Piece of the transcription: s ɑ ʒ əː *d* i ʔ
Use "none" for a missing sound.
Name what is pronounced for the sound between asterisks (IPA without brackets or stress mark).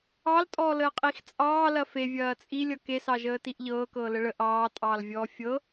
t